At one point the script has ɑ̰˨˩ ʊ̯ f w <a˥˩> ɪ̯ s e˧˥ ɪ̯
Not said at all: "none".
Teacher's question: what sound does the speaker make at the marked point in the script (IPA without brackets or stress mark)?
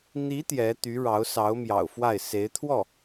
a˥˩